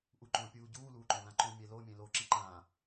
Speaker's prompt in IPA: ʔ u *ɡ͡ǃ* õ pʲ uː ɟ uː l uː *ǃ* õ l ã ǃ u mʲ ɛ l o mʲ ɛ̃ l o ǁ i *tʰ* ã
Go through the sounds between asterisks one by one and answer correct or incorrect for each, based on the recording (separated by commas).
incorrect, correct, incorrect